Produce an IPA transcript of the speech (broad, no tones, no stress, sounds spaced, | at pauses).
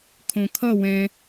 kʰ õ kʰ ʌ w ɛ̃